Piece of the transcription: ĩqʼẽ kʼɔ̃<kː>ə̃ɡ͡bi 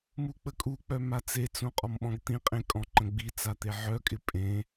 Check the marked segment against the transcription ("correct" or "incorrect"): incorrect